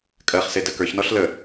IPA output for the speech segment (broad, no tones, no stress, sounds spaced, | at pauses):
kʼ ɜ χ s e d ɜ k ə˞ ç n ɔ ɬ l ə